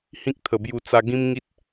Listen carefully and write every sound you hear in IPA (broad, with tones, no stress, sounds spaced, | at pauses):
h ĩ˦ k̚ t̪ʰ ə˨˩ b j u˧ t͡s a˧ ɡ ĩ˦ m ŋ i˦ t̚